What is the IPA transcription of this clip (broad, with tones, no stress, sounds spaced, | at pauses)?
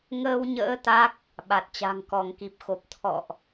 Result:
ŋ əː˧ w ɲ ə̰ː˧˥ t̪ a˦˥ k̚ | ɓ a˨˩ t̚ t͡ɕ a̤˨˩ ŋ k ɔ˧˩ ŋ k i˨˩ p̚ x o˨˩ p̚ t̪ʰ ɔ̰˧˨ ʔ